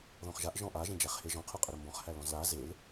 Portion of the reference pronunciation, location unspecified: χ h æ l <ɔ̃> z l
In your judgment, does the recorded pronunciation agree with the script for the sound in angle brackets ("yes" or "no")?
yes